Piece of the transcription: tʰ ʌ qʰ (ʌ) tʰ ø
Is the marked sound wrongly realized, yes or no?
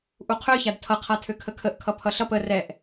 yes